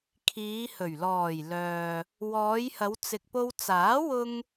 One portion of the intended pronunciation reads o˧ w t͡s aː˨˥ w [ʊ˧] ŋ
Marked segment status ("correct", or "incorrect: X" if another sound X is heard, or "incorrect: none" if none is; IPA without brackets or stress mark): correct